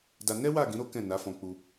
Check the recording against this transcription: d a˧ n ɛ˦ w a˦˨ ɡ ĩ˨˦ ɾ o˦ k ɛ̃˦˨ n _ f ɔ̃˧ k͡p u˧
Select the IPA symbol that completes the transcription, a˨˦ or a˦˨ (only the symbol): a˨˦